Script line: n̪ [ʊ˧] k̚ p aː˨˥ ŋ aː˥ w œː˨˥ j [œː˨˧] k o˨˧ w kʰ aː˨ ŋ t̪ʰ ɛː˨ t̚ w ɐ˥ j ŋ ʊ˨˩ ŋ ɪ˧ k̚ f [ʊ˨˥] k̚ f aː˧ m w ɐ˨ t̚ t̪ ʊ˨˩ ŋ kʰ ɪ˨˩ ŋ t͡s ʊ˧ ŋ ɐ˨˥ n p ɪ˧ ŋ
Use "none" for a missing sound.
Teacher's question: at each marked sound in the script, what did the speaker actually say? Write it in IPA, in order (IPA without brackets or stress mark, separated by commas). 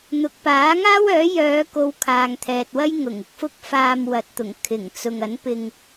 ʊ˨, œː˨˧, ʊ˥